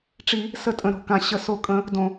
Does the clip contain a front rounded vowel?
no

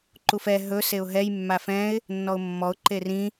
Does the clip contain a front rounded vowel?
no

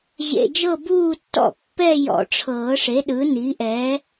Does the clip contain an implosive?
yes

